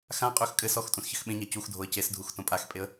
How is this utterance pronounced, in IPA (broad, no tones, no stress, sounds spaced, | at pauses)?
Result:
x ã qʼ ø x kʼ ɘ s ɔ x tʼ ũ s ç ɘ x ɓ ẽ ɲ a c u x dʱ o ə̯ c e s dʱ u x t õ pʼ a x pʼ e ə̯